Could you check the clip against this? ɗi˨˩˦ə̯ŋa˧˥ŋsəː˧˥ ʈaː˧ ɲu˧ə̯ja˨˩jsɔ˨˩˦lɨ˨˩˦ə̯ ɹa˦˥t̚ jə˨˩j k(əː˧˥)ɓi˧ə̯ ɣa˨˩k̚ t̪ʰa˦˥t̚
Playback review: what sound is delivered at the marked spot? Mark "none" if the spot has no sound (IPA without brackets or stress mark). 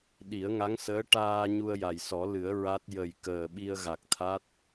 əː˨˩